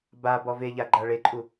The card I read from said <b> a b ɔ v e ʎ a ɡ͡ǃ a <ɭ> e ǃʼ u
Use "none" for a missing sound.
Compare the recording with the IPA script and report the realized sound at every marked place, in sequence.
b, ɭ

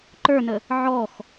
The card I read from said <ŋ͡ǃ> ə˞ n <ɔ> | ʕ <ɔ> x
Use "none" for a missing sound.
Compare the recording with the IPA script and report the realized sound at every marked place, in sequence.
ǃ, ə, ɔ

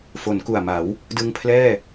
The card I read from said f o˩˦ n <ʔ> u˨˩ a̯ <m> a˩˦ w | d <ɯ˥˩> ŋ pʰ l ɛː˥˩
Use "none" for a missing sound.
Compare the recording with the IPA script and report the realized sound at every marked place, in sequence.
k, m, ɯ˧

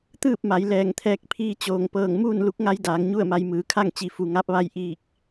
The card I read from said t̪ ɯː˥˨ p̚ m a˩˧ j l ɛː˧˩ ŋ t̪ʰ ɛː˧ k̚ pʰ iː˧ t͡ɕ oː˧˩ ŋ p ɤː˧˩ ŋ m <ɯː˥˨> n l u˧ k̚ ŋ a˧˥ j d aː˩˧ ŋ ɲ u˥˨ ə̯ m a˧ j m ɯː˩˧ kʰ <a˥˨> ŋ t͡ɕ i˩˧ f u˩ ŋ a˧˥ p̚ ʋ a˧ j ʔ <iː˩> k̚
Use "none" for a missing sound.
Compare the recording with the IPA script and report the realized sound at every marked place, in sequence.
uː˥˨, a˥˨, iː˧˩

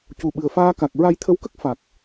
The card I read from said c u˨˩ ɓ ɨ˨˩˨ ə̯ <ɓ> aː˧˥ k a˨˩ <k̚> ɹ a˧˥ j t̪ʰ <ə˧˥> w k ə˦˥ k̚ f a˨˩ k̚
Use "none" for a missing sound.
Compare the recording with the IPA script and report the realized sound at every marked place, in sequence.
f, k̚, ə˧˥

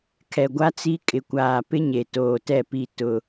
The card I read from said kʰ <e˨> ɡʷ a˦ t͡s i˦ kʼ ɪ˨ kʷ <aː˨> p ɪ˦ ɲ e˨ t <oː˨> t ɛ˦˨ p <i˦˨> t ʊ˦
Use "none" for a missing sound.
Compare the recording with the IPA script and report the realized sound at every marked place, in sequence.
ɛ˨, aː˨, oː˨, i˦˨

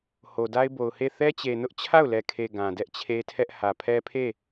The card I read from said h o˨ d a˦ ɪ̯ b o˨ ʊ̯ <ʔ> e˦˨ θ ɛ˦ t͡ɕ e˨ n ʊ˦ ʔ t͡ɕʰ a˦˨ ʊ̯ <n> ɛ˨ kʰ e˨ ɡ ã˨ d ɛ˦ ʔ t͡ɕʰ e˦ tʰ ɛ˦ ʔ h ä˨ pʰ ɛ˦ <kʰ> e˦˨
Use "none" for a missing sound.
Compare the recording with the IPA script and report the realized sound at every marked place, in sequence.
h, l, pʰ

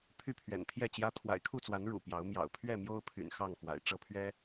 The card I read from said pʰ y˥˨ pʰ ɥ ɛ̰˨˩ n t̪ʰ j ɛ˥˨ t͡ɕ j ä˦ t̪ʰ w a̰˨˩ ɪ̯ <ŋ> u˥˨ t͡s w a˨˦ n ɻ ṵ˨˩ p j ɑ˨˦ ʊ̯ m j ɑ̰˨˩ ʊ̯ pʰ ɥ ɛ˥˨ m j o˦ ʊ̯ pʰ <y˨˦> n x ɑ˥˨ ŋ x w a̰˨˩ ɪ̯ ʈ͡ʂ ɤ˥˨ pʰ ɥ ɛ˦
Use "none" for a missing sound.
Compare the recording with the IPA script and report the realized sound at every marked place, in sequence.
kʰ, y̰˨˩

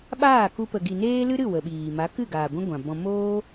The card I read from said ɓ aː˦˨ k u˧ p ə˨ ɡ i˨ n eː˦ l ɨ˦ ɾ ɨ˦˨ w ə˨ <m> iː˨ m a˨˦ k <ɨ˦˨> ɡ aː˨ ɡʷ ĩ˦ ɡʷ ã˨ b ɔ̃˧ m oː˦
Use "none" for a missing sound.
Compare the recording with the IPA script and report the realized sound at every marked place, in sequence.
ɓ, ɨ˦˨

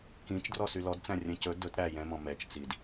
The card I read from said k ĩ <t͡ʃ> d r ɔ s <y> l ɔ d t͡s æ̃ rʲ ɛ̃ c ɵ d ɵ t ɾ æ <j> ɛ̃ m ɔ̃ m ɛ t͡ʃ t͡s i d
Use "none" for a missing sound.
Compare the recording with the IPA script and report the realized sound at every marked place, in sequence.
t͡ʃ, y, j

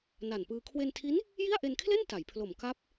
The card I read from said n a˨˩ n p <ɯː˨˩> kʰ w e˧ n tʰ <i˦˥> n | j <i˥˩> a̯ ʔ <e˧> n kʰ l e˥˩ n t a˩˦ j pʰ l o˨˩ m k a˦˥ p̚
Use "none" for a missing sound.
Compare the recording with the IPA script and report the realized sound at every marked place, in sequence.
ɯː˧, i˦˥, i˥˩, e˧

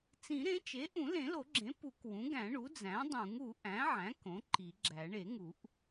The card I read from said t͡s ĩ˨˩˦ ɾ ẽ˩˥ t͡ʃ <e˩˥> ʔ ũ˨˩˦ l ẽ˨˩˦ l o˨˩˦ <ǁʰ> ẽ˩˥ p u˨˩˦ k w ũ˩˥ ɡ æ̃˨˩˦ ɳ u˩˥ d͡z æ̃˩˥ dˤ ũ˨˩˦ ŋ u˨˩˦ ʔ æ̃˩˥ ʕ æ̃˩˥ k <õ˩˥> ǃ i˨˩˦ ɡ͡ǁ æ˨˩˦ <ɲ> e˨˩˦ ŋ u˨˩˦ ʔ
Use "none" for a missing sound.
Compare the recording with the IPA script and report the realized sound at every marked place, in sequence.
e˩˥, ɡ͡ǁ, õ˩˥, ɳ

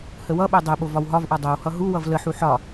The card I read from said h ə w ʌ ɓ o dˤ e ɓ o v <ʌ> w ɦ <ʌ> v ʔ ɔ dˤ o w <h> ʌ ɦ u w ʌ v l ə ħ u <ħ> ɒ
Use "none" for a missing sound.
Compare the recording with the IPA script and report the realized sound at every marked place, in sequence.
ɒ, ɒ, h, ħ

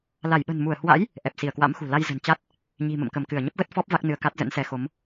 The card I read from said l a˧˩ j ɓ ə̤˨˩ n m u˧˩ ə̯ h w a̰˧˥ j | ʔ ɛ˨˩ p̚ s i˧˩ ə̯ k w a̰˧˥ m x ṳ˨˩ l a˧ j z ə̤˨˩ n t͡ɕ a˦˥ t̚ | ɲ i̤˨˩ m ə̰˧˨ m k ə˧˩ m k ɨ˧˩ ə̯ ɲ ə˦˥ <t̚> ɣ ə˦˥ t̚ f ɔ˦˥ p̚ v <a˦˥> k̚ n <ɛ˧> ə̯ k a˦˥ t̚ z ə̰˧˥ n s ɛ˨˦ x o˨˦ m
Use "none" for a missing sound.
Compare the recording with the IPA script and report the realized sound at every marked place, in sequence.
p̚, a˦˥, ɨ˧

